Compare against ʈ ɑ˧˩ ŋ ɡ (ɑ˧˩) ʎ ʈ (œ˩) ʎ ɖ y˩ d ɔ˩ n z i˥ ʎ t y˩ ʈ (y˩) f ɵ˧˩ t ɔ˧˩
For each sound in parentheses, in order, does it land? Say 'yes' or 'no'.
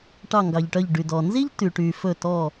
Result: no, no, yes

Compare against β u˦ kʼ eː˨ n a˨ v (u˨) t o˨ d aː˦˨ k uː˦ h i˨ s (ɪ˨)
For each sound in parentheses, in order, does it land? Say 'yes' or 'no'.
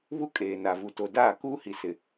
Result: yes, yes

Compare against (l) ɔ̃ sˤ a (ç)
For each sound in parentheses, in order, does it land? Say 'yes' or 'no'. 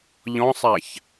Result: no, yes

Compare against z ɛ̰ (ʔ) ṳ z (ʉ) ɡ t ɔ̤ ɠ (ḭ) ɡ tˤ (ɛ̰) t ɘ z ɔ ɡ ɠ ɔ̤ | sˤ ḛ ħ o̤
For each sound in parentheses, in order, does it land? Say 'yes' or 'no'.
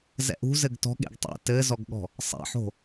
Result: yes, no, no, yes

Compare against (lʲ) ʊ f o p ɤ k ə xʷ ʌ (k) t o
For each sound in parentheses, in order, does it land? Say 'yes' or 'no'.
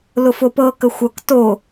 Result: no, yes

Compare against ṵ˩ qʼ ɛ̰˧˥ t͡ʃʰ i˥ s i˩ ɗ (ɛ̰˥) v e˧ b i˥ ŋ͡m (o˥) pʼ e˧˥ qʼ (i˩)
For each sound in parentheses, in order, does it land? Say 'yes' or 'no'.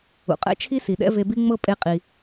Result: yes, no, yes

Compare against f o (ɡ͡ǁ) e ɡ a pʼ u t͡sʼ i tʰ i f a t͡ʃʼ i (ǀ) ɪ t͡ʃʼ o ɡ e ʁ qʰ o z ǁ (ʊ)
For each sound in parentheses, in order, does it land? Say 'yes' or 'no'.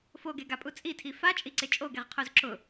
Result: no, yes, yes

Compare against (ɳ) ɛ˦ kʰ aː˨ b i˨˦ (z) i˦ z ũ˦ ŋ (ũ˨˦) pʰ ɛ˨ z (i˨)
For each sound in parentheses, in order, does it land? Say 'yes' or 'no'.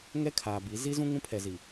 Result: no, yes, no, yes

